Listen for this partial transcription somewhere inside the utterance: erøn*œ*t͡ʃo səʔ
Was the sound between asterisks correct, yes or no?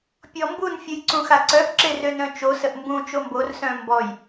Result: no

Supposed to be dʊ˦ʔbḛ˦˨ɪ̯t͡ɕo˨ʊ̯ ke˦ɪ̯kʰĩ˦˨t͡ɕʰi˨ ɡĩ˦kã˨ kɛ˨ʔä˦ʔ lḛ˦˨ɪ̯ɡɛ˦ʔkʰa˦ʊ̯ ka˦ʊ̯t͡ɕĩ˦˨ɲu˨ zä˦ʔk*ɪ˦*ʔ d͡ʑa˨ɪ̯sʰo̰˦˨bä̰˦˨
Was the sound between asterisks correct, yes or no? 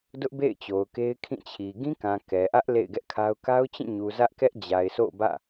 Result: no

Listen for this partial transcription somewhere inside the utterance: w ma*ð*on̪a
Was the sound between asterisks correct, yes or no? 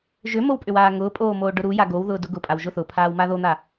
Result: yes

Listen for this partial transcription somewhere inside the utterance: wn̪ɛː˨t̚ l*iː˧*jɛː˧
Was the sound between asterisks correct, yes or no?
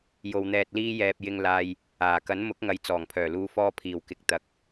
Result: no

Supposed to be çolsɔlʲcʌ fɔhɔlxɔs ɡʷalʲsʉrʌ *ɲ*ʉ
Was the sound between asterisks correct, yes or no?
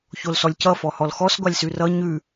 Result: yes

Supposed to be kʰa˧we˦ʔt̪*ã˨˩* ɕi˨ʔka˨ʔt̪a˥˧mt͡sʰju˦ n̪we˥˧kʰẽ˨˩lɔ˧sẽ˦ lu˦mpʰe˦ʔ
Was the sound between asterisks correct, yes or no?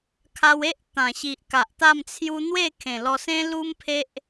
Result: yes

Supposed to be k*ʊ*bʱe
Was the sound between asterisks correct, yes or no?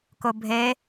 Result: yes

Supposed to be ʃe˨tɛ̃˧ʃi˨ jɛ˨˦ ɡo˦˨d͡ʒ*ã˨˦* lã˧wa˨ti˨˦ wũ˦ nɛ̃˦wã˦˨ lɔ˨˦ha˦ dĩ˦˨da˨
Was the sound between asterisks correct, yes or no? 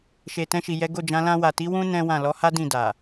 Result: yes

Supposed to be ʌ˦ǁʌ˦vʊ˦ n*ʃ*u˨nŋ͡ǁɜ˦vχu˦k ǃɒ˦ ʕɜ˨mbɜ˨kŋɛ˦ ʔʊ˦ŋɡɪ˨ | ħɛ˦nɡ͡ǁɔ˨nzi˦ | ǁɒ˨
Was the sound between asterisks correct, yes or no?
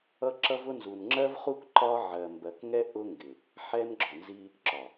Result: no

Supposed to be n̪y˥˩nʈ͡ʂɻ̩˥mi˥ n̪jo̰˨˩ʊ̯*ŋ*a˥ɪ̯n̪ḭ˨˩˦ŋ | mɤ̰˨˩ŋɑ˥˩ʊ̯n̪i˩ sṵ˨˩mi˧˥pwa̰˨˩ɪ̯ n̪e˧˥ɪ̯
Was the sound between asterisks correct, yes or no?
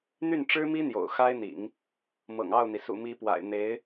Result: no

